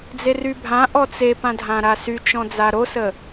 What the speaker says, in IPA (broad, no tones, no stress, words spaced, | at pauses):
d͡zerybʱã ʔɔt͡sepãdʱã ɾasyt͡ʃɔ̃ d͡zaɾosə